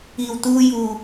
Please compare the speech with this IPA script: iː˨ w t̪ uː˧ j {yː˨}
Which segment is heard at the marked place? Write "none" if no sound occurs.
uː˨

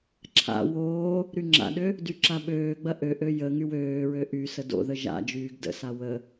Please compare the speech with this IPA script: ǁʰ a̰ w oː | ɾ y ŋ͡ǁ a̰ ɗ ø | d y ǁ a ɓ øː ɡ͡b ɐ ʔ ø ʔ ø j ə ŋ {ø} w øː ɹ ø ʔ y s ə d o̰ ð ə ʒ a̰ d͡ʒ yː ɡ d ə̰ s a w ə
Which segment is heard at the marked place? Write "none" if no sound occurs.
y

